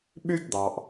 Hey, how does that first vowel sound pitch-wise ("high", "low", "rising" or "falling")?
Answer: high